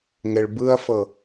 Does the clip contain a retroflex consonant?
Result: yes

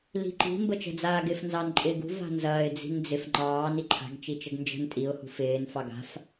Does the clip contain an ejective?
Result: yes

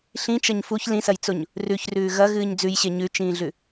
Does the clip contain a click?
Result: no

